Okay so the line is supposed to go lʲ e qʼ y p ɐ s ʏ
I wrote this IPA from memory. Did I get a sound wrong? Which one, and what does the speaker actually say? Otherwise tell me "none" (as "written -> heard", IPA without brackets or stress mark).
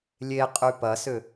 none